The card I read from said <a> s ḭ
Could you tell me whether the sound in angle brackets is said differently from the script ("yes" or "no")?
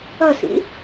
yes